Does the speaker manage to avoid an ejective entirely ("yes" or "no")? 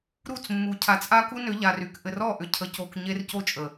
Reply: no